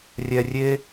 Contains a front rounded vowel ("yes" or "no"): no